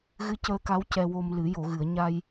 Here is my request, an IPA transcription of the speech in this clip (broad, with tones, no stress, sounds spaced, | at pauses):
ɣ ɨ˧˥ c əː˧ k a˧˥ w c ɛ˧ w o˧ m l ɨ˨˩˦ j o˨˩˨ ɣ ɨ˨˩˨ ə̯ ɲ a˧ j